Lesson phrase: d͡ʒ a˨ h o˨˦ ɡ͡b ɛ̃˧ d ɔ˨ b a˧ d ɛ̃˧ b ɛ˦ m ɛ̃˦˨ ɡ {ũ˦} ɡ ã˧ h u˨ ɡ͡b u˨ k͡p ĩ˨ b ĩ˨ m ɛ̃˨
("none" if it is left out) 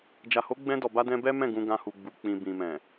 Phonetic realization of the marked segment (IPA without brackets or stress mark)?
ũ˧